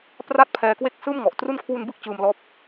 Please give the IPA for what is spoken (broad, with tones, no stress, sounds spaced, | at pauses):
p r a˥˩ t̚ pʰ ɛː˧ k w e˥˩ k̚ s ɯː˥˩ m ŋ ɔ˨˩ ʔ t r u˦˥ n kʰ w u˧ n b ɯ˥˩ k̚ t͡ɕ ɯː˧ m l ɔː˦˥ p̚